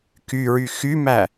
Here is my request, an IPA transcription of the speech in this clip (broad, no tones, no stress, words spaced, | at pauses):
kyɹy xymæ